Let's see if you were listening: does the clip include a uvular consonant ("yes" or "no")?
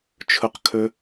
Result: yes